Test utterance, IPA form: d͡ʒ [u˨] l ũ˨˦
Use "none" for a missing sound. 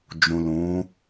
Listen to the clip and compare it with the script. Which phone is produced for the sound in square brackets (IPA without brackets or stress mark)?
ũ˨